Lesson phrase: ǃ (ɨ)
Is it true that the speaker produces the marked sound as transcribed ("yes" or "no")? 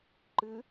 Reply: yes